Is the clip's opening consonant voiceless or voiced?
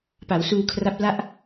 voiceless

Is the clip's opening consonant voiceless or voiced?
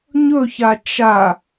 voiced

